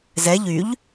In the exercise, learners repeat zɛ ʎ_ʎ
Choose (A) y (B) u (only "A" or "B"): A